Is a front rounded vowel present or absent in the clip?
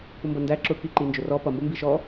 absent